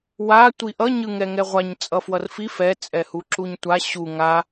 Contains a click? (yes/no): yes